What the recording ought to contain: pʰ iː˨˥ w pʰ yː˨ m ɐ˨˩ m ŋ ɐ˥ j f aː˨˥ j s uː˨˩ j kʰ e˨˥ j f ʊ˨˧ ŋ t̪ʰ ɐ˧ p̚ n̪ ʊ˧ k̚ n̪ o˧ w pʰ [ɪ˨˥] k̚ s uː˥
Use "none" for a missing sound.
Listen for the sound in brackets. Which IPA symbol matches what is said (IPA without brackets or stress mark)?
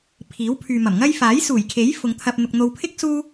ɪ˥